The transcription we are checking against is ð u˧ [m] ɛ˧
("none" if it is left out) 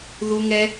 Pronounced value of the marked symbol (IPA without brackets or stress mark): ŋ